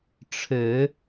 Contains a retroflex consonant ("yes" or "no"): yes